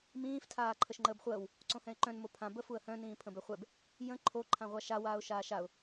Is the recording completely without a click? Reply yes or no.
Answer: no